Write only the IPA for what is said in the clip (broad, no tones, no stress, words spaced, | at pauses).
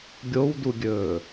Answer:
ɡʲowduɡʲɵː